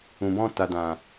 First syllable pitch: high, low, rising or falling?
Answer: low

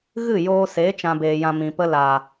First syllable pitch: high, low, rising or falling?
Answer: falling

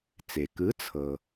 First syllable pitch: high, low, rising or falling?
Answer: low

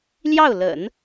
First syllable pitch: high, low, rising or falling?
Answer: falling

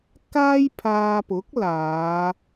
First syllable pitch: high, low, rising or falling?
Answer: high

